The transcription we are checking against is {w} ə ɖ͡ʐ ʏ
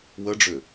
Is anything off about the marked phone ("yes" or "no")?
no